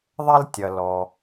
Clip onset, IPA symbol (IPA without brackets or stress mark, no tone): ðˤ